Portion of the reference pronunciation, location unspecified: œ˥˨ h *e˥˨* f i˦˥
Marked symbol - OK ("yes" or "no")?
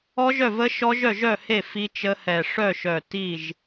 yes